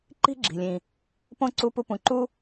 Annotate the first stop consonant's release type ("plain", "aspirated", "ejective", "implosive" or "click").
click